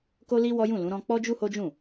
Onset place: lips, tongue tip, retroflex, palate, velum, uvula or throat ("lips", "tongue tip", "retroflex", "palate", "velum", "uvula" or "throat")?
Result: velum